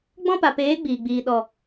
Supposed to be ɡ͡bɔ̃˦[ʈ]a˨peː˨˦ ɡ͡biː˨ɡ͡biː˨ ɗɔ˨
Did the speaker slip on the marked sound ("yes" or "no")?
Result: yes